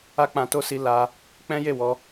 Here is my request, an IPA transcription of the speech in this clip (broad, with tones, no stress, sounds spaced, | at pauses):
a˦ k͡p ã˧ t o˦ s i˧ l a˧ | k͡p ɛ̃˦ j e˦˨ w ɔ˧